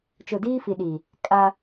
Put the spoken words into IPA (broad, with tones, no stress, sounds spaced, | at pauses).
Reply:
t͡ʃ ʊ˨ d iː˦ f i˨ ɗ i˨ | kʼ a˦